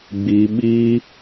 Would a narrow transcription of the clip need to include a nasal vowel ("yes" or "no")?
no